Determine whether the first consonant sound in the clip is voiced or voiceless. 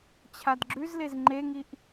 voiceless